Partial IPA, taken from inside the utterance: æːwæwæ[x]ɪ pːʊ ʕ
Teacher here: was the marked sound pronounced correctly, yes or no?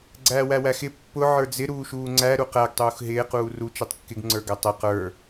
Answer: yes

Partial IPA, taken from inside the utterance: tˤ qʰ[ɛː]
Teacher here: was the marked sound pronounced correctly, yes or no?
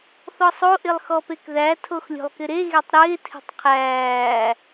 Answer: no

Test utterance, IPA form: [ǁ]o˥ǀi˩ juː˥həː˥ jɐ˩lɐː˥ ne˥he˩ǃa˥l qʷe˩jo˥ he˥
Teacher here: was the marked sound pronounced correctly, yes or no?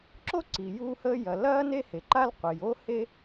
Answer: yes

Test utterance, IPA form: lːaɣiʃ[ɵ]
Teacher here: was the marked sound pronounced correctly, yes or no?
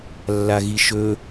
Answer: yes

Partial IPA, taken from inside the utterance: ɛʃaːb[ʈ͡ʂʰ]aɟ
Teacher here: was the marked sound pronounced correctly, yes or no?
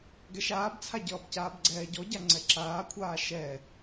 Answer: no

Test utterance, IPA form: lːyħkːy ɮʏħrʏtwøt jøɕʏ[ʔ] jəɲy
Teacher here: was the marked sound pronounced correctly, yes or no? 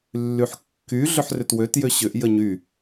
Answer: yes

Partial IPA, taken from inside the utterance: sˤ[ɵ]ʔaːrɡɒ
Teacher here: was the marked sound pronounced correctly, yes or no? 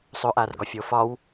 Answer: yes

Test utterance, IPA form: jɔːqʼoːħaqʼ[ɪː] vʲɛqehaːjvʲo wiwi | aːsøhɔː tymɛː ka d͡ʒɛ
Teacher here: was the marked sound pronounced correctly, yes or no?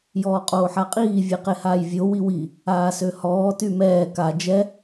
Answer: no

